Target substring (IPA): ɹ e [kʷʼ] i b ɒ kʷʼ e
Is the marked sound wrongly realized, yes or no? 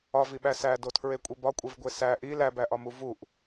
no